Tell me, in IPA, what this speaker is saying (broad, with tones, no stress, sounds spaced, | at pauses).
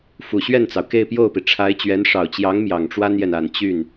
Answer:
f u˨˩ ɕ ɥ ɛ˥˩ n t͡s ɑ˩ ʊ̯ k e˥˧ ɪ̯ p j o˥˩ ʊ̯ p i˩ ʈ͡ʂʰ a˧˥ ɪ̯ t͡ɕ ɥ ɛ˧˥ n ʂ ɑ˨˩ ʊ̯ t͡ɕ j ɑ˧˥ ŋ m j ɑ˨˩ ŋ ʈ͡ʂ w a˥ n j ɛ˨ n a˨˩ n t͡ɕ y˥˩ n